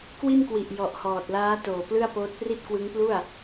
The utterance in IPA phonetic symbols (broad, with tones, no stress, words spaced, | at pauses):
kwi˥˩nkwi˨˩ʔ jɔ˨˩ʔhɔː˨˩t̚laː˦˥ toː˨˩plɯ˥˩a̯poː˦˥t̚ pri˥˩t̚kwɯ˦˥ŋplu˥˩a̯